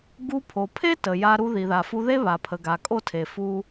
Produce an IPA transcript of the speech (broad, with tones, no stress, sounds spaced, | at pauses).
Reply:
ɡ u˧ pʰ o˨ pʰ e˦ t ə˨ j a˧ ɾ u˧ ð i˨ ð a˨ f u˧ ð e˦ β a˨ pʰ ə˨ ɡ a˨ kʼ o˦ tʰ e˨ f u˦